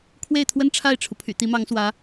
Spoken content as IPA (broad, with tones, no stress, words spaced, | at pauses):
kʰwe˥˩ɪ̯t̪ʰwə˥n ʈ͡ʂʰa˥˩ɪ̯ʈ͡ʂʰu˩pʰy̰˨˩ t̪i˧˥mɑ˧˥ŋswä˧˥